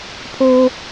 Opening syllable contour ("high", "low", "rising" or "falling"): high